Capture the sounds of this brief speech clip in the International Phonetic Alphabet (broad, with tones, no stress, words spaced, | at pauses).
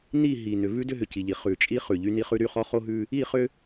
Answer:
ni˦˨ ɦi˨ nʏ˨vʉ˦ dʏ˦ɦʏ˨ci˨ʎi˨ χʉ˨t͡ʃʼi˦ χʉ˨ʎy˦ni˦χʉ˦ ɾy˦˨χɔ˦ χo˦ɦʉ˦ | i˦˨χʏ˦